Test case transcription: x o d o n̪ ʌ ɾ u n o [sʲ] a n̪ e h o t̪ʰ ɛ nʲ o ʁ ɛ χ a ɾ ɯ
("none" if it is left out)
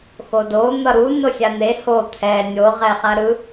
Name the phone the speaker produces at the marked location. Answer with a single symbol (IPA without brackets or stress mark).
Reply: sʲ